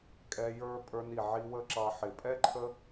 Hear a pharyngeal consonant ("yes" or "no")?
yes